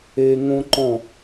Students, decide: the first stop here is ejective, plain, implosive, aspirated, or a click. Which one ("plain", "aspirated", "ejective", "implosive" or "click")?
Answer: click